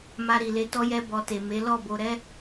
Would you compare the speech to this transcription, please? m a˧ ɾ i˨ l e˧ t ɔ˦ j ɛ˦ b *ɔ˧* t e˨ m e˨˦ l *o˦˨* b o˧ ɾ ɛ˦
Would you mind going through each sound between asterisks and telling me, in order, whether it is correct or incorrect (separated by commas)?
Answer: correct, incorrect